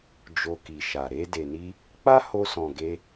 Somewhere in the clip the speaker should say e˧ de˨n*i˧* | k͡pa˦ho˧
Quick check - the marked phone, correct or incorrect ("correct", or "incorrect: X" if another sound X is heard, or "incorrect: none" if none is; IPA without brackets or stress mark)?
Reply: correct